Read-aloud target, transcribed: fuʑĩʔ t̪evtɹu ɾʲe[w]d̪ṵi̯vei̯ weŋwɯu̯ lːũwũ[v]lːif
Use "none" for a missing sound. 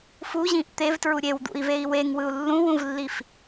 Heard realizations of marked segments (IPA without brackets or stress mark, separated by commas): w, v